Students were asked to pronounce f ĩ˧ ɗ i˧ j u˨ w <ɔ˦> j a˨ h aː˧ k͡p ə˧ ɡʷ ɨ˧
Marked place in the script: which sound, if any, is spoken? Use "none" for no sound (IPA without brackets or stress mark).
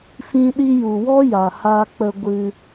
ɔ˦